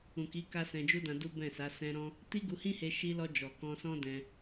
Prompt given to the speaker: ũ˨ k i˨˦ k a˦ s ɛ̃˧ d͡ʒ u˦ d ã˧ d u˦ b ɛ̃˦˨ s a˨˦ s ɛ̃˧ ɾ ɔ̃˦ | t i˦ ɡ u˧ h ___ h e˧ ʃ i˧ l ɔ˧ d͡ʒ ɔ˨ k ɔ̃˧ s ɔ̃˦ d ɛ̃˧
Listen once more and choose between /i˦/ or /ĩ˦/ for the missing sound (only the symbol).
ĩ˦